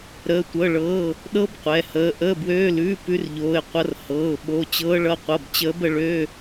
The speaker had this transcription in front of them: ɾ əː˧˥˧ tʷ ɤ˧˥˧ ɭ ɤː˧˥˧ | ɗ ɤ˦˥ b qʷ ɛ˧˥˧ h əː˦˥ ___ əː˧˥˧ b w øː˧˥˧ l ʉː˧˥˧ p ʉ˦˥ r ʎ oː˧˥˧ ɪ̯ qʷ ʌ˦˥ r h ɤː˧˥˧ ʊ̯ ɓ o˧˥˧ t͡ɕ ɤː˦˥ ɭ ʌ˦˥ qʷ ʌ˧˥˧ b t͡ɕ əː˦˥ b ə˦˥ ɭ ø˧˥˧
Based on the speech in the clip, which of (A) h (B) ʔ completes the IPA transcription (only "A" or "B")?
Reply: B